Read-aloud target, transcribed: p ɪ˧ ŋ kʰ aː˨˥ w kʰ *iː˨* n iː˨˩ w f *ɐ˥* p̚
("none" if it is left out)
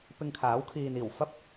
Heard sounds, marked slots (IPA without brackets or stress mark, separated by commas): iː˨, ɐ˥